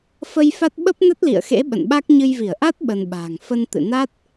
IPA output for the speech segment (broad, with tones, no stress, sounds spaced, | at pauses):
f ə˧ j f a˦˥ t̚ ɓ ə˦˥ p̚ n ə˦˥ t̚ l ḭ˧˨ ə̯ x ḛ˧˥ ɓ ə̰˧˨ n ɓ a˦˥ k̚ ɲ ɨ˧ j v i˧˩ ə̯ ʔ a˦˥ t̚ ɓ ə˧ n ɓ a̤ː˨˩ ŋ f ə˧ n t̪ ɨ̰˧˨ n a˦˥ t̚